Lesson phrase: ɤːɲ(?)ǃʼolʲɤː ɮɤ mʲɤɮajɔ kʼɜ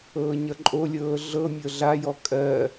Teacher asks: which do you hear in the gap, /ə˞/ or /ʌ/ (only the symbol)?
ʌ